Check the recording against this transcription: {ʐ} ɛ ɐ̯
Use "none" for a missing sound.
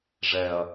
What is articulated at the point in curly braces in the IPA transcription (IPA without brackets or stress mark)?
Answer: ʐ